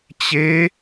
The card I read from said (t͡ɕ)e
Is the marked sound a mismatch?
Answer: no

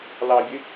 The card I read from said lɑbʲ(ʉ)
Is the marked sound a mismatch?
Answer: no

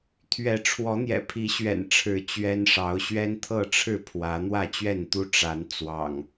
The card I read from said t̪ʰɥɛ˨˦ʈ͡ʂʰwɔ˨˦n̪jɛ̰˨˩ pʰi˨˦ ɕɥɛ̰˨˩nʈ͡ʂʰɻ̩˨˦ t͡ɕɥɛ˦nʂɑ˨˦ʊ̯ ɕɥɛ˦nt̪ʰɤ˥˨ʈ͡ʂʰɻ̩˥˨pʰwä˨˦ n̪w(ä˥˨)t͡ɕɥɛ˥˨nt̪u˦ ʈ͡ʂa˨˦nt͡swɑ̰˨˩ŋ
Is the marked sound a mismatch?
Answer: no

